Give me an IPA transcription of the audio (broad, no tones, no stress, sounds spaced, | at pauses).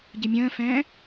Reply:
ɟ ɨ mʲ ə̃ː f ɛ̃ː